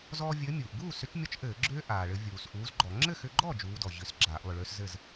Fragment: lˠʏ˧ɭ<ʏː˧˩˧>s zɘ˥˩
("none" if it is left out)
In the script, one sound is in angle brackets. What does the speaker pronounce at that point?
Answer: ʏː˦˥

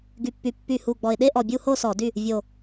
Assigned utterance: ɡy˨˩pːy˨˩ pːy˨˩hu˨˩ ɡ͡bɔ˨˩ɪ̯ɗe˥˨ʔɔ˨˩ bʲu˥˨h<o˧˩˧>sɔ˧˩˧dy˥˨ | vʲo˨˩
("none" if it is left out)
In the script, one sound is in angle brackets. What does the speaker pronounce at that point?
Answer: o˥˨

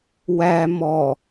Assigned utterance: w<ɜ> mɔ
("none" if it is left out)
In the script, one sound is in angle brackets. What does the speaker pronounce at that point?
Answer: æ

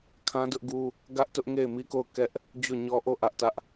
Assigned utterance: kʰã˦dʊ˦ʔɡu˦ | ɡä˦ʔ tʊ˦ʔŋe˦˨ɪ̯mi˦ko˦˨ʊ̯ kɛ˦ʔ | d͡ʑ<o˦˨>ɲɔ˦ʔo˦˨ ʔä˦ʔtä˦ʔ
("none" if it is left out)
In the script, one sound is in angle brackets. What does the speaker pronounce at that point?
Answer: o˦˨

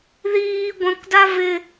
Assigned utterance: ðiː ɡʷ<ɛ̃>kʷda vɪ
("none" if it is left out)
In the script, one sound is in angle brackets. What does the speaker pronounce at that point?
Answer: ɛ̃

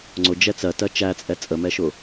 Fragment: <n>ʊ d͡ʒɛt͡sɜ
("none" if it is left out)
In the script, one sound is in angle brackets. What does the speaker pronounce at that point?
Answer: ŋ͡ǀ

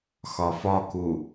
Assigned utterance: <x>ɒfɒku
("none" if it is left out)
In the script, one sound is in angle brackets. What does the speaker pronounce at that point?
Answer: x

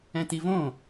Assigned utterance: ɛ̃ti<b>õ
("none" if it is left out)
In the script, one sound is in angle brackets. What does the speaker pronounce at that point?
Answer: v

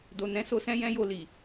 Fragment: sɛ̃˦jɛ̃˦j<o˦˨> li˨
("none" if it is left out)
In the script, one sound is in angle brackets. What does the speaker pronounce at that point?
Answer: o˦˨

